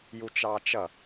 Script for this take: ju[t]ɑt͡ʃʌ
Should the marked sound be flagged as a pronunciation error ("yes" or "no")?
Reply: yes